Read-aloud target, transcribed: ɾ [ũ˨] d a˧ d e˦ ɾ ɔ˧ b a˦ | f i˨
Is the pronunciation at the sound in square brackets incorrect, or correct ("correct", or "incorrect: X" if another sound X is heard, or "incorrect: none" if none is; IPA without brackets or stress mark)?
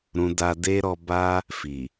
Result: correct